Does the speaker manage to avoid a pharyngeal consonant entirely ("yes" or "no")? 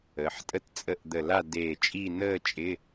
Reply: no